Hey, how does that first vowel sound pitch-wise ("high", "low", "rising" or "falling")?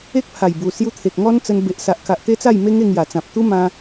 high